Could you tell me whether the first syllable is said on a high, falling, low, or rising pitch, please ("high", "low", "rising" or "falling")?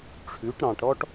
rising